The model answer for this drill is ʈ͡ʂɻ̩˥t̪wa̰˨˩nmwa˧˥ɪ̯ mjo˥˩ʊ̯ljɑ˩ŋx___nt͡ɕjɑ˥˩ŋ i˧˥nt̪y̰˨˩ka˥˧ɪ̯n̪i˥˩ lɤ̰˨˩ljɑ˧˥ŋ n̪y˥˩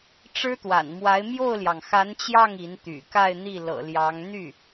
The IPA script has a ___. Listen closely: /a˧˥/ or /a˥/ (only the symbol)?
a˧˥